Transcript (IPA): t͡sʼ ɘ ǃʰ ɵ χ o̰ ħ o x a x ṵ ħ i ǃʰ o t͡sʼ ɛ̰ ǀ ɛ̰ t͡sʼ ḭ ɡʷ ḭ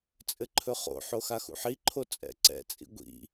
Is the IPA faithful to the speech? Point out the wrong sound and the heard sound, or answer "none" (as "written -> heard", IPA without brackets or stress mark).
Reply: none